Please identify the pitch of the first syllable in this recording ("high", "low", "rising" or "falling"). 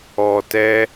low